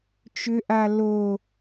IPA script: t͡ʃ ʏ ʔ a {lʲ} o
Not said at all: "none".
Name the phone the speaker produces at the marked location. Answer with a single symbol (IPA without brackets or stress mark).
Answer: l